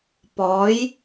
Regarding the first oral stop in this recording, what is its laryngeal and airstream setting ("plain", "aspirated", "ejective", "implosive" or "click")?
plain